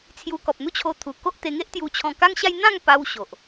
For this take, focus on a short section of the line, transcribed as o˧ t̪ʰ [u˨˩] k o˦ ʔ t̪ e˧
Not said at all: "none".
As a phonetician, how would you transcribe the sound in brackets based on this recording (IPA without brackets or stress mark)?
u˨˩